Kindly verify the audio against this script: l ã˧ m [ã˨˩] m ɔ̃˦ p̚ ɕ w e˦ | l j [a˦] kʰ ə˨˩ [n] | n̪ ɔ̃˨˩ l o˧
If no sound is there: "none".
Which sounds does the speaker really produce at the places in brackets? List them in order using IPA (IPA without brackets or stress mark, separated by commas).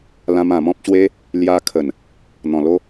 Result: ã˨˩, a˧, n